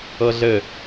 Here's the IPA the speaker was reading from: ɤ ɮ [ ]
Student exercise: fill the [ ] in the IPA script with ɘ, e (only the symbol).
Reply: ɘ